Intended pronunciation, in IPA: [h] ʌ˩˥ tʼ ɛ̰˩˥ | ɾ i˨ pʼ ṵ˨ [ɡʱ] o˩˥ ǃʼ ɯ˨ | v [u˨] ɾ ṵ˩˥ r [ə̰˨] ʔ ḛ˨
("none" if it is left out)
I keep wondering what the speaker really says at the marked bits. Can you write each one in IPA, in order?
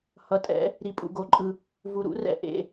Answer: h, ɡ, u˨, ɛ̰˨

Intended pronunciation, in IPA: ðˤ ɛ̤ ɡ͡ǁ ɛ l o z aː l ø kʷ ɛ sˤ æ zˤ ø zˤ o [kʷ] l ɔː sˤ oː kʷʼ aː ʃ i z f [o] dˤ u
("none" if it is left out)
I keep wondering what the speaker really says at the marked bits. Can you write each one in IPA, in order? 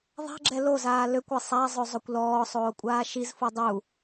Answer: kʷ, o

